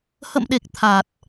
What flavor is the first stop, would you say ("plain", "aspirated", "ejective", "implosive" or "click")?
implosive